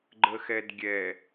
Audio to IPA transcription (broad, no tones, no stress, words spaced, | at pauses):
ɡ͡ǃəxɛdɡʲɛ